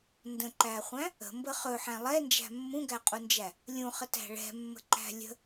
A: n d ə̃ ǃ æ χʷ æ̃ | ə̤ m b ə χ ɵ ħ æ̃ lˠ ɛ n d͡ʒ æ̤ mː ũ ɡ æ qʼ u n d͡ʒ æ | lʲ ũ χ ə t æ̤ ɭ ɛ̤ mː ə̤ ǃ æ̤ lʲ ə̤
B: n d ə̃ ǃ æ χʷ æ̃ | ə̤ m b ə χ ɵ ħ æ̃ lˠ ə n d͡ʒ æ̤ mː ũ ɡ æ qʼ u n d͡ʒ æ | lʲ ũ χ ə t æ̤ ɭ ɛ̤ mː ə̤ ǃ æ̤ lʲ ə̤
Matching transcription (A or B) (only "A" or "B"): A